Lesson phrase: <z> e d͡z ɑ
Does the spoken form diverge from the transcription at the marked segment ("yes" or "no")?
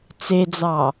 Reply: yes